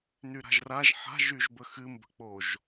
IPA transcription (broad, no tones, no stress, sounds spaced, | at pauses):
n y ɾ a̤ ʒ r a ʒ ħ a̤ ʒ y ʒ b ə x ɨ m b ə̤ k͡p o ʒ